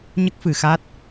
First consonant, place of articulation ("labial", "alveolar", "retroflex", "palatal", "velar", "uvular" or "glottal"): palatal